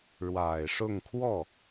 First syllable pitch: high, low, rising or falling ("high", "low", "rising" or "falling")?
low